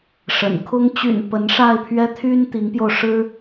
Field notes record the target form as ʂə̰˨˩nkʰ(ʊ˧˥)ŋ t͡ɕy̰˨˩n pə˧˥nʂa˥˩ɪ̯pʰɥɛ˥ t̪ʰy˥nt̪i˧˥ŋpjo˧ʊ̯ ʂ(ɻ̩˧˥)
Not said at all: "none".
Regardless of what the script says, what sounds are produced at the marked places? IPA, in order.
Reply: ʊ˥, ɻ̩˥

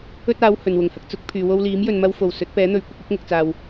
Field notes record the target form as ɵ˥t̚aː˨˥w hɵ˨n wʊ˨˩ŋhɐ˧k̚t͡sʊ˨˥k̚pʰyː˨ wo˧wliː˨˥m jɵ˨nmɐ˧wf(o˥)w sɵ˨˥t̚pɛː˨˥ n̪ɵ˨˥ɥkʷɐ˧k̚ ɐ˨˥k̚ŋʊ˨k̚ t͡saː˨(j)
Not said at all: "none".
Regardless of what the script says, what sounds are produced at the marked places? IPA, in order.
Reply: o˨˩, w

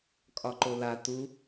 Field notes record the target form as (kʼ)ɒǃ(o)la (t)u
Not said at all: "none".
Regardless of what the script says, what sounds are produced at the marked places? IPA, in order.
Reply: kʼ, o, t

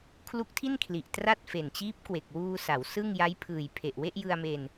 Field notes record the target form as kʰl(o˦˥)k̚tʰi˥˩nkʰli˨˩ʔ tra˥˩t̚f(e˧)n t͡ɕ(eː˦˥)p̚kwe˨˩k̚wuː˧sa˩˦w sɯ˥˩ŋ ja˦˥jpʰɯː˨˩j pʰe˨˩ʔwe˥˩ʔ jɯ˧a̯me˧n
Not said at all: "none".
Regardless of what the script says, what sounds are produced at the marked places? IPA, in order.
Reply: u˦˥, e˨˩, iː˦˥

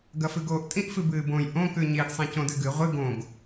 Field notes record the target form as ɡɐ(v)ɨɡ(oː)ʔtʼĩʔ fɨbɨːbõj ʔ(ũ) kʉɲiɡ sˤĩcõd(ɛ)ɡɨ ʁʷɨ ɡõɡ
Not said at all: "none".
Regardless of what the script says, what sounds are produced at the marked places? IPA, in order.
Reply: f, oː, õ, ɨ

